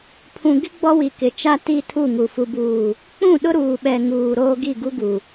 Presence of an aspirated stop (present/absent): present